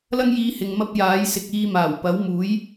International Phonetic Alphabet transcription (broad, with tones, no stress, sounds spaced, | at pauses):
l ɐ˥ ŋ j iː˧ h ɪ˨ ŋ m ɐ˥ p̚ j aː˨˥ j s ɪ˨ k̚ iː˧ m aː˨˩ w p ɐ˨˥ w m uː˨˥ j